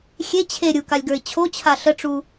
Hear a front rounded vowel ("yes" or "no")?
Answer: no